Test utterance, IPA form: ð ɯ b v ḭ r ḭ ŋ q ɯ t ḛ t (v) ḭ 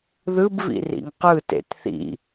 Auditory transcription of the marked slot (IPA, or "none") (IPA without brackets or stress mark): θ